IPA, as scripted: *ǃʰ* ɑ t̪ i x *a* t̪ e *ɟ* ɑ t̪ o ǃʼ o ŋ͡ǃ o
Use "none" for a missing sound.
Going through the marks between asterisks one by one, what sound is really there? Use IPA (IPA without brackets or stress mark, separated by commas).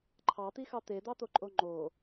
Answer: ǃʰ, ɑ, d̪